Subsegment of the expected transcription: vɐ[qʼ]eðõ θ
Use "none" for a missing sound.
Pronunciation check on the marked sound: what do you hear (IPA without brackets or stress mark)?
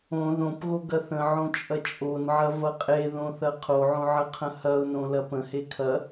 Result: qʼ